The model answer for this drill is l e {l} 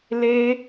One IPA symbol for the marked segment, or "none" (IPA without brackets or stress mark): none